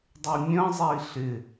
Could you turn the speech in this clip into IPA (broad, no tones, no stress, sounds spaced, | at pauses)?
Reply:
dˤ y mʲ ə̃ zˤ i ɬ ɪ